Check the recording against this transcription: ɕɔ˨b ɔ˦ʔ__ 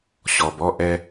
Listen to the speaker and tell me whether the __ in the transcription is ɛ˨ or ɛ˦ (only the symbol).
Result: ɛ˦